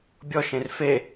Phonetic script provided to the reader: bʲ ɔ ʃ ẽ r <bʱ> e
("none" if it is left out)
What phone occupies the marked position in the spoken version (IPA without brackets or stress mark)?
f